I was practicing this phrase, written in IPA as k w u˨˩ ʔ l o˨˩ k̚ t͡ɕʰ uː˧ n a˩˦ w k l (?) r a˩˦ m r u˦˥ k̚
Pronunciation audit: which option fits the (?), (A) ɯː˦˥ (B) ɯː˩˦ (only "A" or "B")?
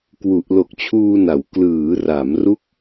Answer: B